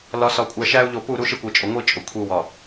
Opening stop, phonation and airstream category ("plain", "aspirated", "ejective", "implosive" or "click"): ejective